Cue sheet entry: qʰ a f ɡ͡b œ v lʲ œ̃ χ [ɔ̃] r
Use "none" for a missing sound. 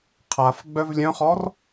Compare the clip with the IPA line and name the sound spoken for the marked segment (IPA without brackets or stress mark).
ɔ